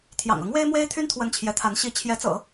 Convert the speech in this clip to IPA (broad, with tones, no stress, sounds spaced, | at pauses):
t̪ʰ j ɑ̰˨˩ ŋ ɤ˧˥ ŋ w e˥ ɪ̯ m w e˥ ɪ̯ t̪ʰ y˥ n t̪ʰ w ə˧˥ n t͡ɕʰ j ɛ˧˥ t̪ʰ a˧˥ n ɕ i˧˥ t͡ɕʰ j ɛ˧˥ t͡s ɤ̰˨˩˦